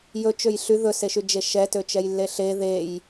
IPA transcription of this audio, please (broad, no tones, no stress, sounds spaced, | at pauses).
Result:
j ɵ t͡ʃ ø j ɬ y ð ɵ s e ʃ y d͡ʒ e ʃ ɛ t ø t͡ʃ ɛ j lː e ɬ e ð e j